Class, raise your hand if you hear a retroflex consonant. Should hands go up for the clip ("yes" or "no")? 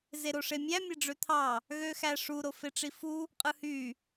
yes